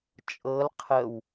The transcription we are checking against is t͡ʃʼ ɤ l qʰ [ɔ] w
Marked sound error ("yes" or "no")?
yes